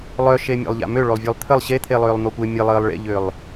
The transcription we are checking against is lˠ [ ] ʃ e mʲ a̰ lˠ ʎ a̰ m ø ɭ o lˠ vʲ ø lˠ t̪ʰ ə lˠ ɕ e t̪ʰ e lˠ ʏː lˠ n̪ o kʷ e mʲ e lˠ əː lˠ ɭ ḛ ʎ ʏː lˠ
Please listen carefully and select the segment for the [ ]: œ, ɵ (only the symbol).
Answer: œ